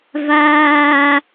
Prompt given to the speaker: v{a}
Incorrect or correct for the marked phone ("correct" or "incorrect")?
incorrect